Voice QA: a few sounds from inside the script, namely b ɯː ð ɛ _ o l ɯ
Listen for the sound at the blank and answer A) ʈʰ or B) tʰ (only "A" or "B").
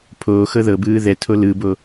B